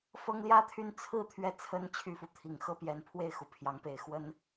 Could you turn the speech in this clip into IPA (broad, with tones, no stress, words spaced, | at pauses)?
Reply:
fɤ˥ŋljä˥t̪ʰy˥n t͡sʰɹ̩˥˩ t̪ʰɥɛ˥t͡sʰə˥n t͡ɕʰy˥˧fu˥˩ t̪ʰi˨˩ŋ xɤ˥pjɛ˧˥npʰwe˥˩ɪ̯ xu˧˥pʰjɑ˧˥ŋpe˨˩ɪ̯ xwə˥n